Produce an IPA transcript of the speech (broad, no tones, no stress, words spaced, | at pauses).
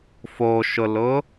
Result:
foʃʊlʊ